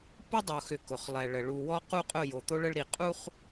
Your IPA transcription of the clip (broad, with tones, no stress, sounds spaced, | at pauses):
p ʊ˦ dˤ o˨ x ʏ˨ k ʊ˨ χ lˠ ɛ˨ ɭ ə˨ ɭ u˨ w ɔ˦ q u˦ qʼ ʊ˦˨ j o˨ t̪ o˦ ɭ ə˦ ɭ ɾ i˨ qʼ u˦ χ